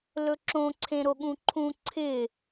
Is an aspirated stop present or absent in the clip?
present